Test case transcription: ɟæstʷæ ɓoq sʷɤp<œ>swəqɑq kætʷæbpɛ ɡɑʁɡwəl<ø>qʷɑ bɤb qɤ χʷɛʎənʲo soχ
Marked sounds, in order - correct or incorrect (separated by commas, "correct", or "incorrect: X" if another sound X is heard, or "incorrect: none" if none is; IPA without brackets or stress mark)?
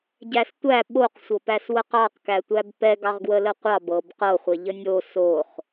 incorrect: æ, incorrect: ə